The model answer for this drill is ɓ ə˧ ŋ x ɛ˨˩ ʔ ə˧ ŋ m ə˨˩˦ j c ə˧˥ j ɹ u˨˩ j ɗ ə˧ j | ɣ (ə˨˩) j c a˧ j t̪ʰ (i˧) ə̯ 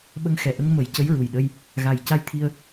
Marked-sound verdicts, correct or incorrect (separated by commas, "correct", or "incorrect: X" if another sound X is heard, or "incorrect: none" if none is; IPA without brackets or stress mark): incorrect: a˨˩, correct